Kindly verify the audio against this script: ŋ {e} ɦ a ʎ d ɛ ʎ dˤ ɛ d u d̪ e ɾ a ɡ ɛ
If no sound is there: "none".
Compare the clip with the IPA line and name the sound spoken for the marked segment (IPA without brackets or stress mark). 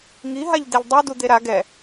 i